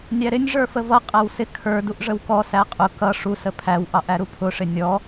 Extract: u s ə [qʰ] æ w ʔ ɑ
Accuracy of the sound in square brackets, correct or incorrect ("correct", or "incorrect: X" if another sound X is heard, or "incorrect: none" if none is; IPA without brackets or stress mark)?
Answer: incorrect: pʰ